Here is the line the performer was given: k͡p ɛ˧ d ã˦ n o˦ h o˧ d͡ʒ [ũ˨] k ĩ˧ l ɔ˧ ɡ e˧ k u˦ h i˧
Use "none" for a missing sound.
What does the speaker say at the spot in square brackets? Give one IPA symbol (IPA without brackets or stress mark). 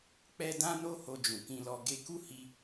ũ˨